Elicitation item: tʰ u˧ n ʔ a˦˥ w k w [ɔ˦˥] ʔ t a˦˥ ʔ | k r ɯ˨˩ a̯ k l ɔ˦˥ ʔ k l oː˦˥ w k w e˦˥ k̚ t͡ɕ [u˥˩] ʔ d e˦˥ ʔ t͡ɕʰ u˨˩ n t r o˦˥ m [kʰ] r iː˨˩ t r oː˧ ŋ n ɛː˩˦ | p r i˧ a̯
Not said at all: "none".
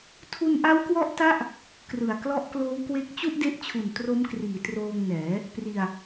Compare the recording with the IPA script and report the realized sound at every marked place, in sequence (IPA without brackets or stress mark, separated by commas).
ɔ˦˥, u˥˩, k